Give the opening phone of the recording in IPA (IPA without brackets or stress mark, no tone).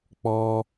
k͡p